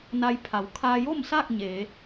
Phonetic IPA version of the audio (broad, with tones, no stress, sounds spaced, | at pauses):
n a˧ j pʰ a˩˧ w kʰ aː˧ j o˥˨ m s aː˥˨ k̚ ɲ eː˩˧